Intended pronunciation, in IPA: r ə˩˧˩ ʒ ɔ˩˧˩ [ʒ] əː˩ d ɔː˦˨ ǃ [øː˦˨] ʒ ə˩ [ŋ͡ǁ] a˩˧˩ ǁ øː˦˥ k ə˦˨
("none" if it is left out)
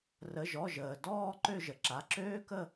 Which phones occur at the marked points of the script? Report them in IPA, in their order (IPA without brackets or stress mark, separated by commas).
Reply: ʒ, ø˦˨, ǁ